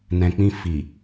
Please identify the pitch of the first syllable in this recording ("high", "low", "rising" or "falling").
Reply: low